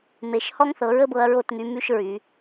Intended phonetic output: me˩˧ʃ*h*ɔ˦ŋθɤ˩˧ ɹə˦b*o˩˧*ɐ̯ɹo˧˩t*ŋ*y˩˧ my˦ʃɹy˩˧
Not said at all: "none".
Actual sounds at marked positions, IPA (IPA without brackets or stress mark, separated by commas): h, ɤ˩˧, ŋ